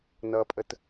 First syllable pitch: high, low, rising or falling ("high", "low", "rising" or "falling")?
low